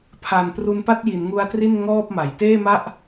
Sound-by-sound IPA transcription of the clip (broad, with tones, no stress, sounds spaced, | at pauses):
pʰ a˨˩ n p r u˧ n p a˥˩ t̚ j i˩˦ n ŋ u˦˥ a̯ t r i˥˩ n ŋ ɔː˥˩ p̚ m a˩˦ j t eː˥˩ m a˥˩ ʔ